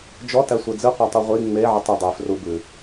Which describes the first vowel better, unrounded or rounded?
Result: rounded